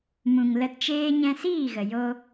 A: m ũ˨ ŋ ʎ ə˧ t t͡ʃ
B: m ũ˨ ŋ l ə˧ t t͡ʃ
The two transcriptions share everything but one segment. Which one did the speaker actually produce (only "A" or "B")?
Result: B